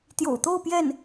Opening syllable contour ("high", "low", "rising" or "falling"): low